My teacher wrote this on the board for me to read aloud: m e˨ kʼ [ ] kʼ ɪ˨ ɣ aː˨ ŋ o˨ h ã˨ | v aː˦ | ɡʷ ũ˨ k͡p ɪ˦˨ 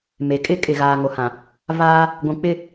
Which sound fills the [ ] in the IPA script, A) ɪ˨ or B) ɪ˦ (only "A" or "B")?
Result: B